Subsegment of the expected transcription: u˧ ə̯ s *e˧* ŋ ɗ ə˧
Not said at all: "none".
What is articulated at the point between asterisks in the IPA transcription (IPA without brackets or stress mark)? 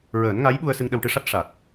ɨ˧